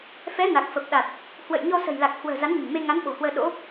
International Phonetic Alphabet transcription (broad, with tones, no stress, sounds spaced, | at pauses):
f ɛ˨˦ n a˨˩ k̚ f ə˨˩ p̚ ɗ a˨˩ t̚ | h w ə̰˧˨ j ɲ ɔ˧ s ə̤˨˩ j l a˨˩ k̚ h w ə̤ː˨˩ z a˨˦ n ɲ ə̤˨˩ n m e˧ ŋ a˨˦ n ɓ o̤˨˩ h w əː˧ ɗ o̰˧˥